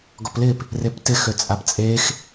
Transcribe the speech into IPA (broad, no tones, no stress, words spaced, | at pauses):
ɡɔplɪːp | reptɪ xøt͡sʼapt͡sʼeːx